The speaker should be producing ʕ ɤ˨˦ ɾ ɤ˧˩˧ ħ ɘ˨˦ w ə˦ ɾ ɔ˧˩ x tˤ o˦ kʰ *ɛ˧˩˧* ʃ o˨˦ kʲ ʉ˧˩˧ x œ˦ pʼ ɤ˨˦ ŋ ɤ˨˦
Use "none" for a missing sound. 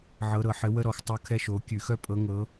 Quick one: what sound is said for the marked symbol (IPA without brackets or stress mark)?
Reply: ɛ˦